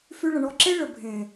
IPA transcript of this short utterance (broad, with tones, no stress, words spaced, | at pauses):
fy˧ɭə̃˨ɳɔ˧ ǁe˦ɭə˨ bʱẽ˨